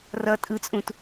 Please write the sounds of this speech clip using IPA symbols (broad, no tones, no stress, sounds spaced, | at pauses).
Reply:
r ʌ tʼ ɯ t͡sʼ ũ t